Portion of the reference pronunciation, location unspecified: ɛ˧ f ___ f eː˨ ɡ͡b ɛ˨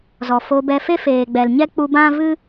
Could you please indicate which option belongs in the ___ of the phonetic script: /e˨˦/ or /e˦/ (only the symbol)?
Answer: e˦